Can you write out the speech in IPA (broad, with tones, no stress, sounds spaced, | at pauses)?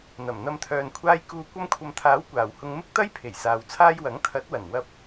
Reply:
n̪ ɐ˨˩ m n̪ ɐ˧ m t̪ʰ œː˨ n kʷʰ aː˧ j k uː˨ kʷ ɐ˧ m kʷʰ ɐ˨ m t̪ʰ aː˨˥ w kʷ aː˨˩ w h ʊ˧ ŋ m ɪ˥ k̚ t̪ ɐ˥ j pʰ e˨˩ j s aː˨ w t͡sʰ aː˥ j w ɐ˨˥ ŋ t̪ʰ ɐ˨˥ t̚ w ɐ˨˩ n w ɐ˧ p̚